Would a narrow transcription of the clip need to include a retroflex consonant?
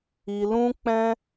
no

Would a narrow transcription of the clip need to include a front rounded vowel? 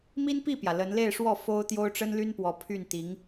yes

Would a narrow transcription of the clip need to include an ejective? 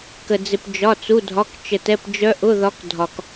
no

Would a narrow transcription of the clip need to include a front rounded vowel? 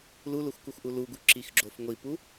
no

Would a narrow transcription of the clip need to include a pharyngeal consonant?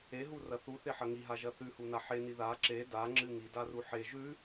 yes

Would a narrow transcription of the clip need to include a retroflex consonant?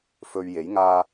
no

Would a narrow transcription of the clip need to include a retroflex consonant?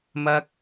no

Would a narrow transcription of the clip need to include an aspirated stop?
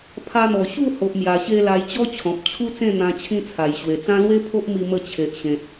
yes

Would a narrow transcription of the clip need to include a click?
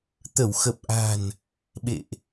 no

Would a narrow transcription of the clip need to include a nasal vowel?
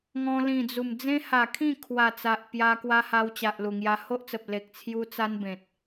yes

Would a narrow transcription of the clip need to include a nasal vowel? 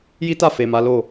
no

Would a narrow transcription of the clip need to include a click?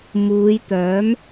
no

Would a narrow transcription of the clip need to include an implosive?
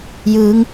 no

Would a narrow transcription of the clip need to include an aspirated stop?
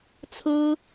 yes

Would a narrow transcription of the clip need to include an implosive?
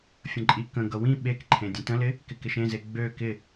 yes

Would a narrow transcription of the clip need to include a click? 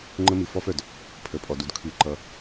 yes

